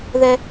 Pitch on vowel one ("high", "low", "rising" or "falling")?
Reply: high